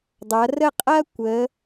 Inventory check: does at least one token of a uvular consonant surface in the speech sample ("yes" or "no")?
yes